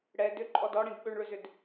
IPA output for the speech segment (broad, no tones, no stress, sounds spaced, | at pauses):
ɽ ɛ d ʏ ǃʼ ɔ d ɔ ɽ ĩ d ɓ ʏ ɳ ɭ ʏ z ʏ d